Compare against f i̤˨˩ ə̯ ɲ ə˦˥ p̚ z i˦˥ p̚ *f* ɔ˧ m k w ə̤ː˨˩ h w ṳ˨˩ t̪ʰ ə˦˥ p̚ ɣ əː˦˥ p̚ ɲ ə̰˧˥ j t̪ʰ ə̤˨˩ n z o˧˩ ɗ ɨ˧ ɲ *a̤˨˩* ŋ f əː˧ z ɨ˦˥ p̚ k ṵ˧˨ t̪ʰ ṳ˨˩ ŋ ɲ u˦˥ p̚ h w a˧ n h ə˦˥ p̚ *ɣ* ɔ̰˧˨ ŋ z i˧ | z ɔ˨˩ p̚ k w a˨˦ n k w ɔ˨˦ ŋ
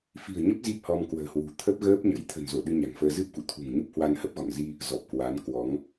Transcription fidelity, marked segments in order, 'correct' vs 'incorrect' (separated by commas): incorrect, correct, correct